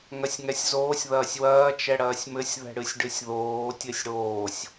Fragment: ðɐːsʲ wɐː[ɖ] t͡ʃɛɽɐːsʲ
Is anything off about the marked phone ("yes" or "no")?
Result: yes